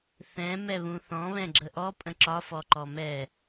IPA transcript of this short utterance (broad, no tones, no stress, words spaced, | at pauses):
θɛ̃ mɛβũθɔ̃ βɛ̃ɡ͡ǁəʔɔ pʼə̃ǁɒ fɔǃɔmɛ